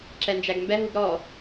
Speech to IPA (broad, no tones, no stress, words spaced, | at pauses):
ǁɛnd͡ʒæɡmbɛ ɦuɡɾɔ